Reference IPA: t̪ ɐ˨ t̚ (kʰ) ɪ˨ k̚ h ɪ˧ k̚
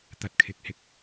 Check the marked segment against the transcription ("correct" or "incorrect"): correct